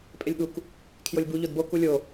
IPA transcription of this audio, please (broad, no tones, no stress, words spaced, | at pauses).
pʼelʲɠuk | kʰjolʲbu ʎodbo kulʲo